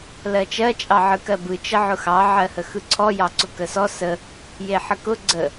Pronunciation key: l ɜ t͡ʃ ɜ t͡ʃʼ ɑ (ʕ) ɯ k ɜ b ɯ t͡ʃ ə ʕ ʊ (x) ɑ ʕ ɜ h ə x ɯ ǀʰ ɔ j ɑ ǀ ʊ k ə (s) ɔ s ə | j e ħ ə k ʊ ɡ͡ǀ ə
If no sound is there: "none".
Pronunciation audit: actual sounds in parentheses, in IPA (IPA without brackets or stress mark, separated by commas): ʕ, x, s